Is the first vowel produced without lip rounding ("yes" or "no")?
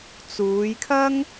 no